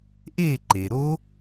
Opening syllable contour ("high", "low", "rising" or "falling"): falling